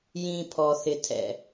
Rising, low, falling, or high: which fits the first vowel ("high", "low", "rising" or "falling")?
low